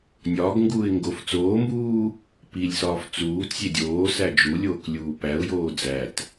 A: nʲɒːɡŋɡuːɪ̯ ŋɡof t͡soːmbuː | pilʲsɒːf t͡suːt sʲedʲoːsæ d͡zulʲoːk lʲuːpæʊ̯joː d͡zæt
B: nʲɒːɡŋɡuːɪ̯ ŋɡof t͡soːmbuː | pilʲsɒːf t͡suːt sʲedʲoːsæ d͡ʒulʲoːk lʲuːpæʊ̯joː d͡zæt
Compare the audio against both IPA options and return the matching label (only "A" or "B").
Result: B